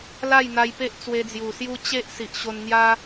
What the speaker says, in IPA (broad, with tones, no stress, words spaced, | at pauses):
la˥˧jn̪a˧jpe˦ʔ t͡swe˧d͡zju˨˩sju˦ t͡ɕe˦ʔ si˨ʔɕo˧n n̪ja˦